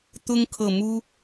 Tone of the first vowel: high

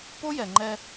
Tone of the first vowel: high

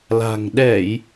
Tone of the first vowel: low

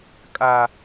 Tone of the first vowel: high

